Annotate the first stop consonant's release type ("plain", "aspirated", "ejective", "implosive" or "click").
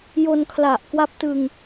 aspirated